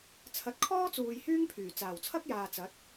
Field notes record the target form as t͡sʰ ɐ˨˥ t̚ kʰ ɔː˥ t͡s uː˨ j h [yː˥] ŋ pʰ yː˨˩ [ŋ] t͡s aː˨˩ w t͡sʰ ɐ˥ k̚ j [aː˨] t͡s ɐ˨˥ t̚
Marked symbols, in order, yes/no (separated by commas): yes, no, yes